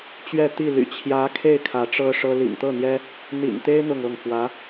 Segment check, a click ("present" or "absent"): absent